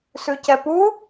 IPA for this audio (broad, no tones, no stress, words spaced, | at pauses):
sʉcɛpu